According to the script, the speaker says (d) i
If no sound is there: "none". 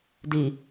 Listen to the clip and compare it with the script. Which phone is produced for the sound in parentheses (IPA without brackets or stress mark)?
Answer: d